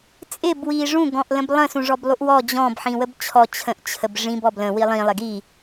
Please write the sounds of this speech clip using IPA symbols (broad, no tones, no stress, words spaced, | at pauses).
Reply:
t͡sʼɪb wiʐũ ɡɔ̃ʔlə̃blˠə̃ sũʐɔblˠuʔwɔ d͡ʑɔ̃b ħĩwəbt͡ɕʰɔ t͡ɕʰə̃ʔ t͡ɕʰəbʐĩb ɔblə̃ wilˠĩ lˠɪɡi